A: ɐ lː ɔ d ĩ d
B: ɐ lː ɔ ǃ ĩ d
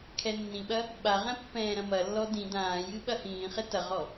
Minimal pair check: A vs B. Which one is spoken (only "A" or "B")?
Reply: A